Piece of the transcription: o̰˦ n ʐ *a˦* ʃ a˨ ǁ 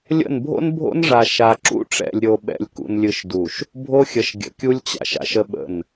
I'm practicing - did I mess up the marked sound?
yes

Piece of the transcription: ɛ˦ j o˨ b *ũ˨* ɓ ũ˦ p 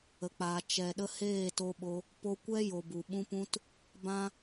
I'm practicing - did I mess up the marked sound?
yes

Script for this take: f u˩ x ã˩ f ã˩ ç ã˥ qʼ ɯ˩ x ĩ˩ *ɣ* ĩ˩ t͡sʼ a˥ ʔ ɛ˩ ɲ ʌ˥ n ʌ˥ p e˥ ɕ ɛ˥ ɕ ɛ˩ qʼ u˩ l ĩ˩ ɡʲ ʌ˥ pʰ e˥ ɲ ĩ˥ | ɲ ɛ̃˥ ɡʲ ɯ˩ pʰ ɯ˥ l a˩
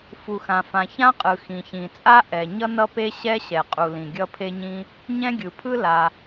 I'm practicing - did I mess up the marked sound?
yes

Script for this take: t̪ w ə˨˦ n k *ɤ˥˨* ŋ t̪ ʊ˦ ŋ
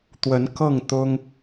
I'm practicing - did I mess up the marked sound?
no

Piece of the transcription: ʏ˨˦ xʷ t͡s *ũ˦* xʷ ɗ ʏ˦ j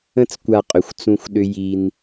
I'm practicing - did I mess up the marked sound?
no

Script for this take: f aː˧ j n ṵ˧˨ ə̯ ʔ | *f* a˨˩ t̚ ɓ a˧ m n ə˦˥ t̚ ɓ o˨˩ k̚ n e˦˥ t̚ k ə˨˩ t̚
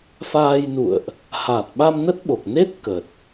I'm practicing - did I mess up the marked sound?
yes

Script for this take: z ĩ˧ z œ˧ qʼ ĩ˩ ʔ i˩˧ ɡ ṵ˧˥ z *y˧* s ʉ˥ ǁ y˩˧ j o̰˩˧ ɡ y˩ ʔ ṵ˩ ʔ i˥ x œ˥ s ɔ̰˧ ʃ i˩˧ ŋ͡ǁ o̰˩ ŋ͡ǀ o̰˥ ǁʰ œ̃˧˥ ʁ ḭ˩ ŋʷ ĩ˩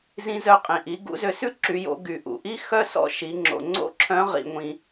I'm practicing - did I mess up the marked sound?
yes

